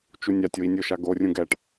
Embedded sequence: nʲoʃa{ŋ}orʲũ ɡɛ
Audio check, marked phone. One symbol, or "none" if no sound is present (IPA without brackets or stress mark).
ɡ